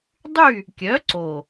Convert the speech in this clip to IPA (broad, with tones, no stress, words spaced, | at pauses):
dˤy˥˨ | kʲœ˨˥ǀo˨˩